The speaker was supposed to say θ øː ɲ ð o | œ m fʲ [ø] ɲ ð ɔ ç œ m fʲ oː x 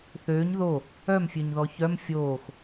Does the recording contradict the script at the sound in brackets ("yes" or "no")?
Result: no